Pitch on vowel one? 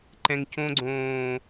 low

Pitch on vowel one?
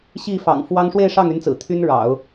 falling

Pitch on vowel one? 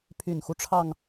low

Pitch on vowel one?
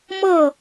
falling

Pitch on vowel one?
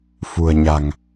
low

